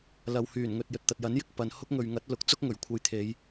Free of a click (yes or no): yes